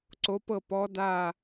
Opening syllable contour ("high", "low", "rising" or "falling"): rising